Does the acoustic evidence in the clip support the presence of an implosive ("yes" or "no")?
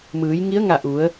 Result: no